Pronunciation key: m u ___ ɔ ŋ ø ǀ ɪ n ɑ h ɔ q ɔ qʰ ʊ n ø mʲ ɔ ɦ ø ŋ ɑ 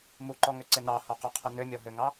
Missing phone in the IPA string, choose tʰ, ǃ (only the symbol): ǃ